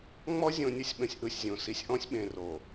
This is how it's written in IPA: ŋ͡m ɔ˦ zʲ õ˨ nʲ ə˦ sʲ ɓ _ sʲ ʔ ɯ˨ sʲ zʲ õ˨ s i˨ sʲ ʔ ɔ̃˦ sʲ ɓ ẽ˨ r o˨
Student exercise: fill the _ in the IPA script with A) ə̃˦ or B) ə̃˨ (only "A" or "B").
B